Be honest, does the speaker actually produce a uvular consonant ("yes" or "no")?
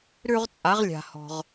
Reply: yes